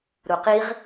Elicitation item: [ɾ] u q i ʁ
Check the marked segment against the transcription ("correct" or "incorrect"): correct